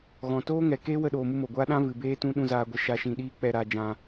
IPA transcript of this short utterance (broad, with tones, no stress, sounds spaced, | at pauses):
ɣ ɔ̃˨ t oː˦ ŋ ɛ˨ k eː˦ w ə˧ ɗ oː˨ m u˧ m o˨ ɡʷ aː˦ ɗ ã˦ v ɨ˨ b eː˦ t ũ˦ ɗ ũ˧ z aː˧ ɡʷ ə˧ ʃ a˧ ʃ ĩ˧ ɗ iː˦ k͡p ɛ˧ ɾ aː˧ d͡ʒ ã˧